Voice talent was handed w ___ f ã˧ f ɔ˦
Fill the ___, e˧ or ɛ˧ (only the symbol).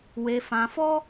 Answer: e˧